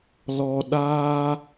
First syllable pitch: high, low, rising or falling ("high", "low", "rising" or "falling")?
low